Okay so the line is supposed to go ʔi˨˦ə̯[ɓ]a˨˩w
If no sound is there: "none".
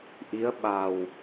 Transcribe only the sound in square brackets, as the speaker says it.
ɓ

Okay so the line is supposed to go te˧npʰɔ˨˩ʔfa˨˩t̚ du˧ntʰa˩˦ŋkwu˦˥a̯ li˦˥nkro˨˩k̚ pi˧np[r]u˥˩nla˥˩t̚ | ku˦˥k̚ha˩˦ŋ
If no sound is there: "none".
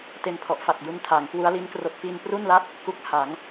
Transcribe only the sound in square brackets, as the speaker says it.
r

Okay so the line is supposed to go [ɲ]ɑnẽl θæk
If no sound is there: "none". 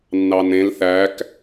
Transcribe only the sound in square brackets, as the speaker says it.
nː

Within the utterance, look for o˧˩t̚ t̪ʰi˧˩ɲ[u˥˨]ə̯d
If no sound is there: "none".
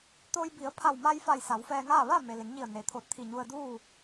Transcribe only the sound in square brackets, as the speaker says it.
u˧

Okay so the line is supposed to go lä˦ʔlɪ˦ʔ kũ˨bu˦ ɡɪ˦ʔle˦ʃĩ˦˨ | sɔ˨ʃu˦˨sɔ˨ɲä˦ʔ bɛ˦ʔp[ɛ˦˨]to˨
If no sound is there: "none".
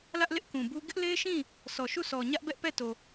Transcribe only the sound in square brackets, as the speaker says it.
ɛ˦˨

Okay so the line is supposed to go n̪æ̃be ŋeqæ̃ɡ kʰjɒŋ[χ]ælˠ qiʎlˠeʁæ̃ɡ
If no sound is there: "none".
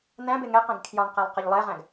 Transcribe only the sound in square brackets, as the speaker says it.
q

